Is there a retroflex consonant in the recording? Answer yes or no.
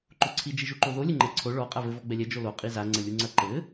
yes